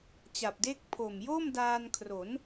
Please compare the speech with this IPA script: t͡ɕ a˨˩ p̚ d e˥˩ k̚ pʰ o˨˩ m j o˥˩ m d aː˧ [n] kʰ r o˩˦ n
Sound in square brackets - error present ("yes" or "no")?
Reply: no